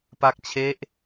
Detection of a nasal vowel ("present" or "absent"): absent